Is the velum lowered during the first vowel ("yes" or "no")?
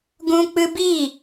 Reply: yes